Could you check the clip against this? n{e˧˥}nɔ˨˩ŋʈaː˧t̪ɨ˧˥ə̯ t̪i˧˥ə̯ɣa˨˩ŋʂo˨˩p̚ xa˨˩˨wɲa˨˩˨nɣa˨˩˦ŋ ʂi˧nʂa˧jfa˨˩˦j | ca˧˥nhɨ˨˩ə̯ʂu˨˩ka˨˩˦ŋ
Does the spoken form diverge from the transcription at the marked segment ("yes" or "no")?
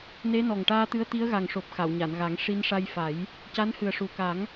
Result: no